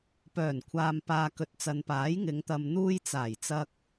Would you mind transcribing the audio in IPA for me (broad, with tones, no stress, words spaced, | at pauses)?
pœː˨˩nkʷʰaː˨mpaː˨ kɵ˨t̚t͡sɐ˨npaː˨˥j ŋɪ˨˧ŋt̪ɐ˨m n̪uː˧j t͡saː˨˩jt͡sɐ˧k̚